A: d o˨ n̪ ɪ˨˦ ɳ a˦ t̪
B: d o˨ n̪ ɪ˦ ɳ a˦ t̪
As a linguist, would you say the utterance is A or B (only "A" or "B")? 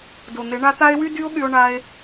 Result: A